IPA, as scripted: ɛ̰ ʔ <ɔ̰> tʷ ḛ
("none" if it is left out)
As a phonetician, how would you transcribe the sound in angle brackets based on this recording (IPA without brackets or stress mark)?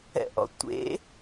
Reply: ɔ̰